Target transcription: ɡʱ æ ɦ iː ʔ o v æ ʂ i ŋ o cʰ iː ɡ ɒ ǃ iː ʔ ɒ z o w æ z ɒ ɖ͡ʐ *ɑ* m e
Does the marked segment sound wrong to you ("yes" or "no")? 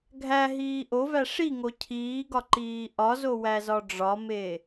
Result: yes